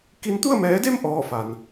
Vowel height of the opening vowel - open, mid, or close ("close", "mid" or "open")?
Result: close